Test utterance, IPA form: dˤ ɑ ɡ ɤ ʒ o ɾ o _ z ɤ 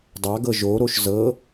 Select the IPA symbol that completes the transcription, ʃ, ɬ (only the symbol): ʃ